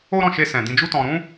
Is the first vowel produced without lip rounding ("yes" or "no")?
no